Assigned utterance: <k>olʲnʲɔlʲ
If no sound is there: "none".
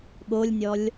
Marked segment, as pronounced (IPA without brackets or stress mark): ɠ